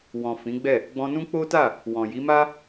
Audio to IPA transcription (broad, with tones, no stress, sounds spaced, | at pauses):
w ɔ̃˨ f ĩ˨˦ ɡ͡b ɛ˦˨ | ɡ͡b ɔ̃˧ n ũ˦ k͡p o˦ t a˦˨ | w ɔ̃˨ j i˨˦ m a˦